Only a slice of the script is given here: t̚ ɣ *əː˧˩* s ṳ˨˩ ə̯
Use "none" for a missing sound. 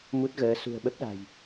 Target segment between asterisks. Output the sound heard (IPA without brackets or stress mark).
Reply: əː˨˦